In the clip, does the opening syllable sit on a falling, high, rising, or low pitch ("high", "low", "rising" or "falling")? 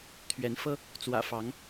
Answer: rising